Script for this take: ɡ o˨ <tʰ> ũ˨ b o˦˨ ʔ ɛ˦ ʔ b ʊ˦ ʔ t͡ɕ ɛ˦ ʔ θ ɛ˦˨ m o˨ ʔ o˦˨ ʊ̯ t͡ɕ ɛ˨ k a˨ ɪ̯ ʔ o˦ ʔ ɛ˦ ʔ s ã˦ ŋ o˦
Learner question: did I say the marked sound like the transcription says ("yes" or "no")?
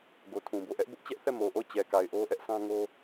yes